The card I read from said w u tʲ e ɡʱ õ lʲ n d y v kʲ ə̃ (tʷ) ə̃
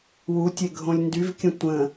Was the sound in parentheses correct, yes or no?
yes